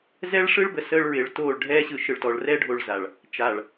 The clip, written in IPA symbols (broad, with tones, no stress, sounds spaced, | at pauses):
z ɛ˦ ɭ ʂ ɯ˦ ɭ b ə˨ s əː˦ ɭ ɹ ɪ˨˦ ɭ t oː˦˨ ɭ ɖʱ ɛː˦ ɕ ɯ˨ ʃ ɯ˨ ɭ t ɔ˨ ɭ r ɛː˦ ɖʱ o˦ ɭ z a˨ ɭ | t͡ʃ a˨ ɭ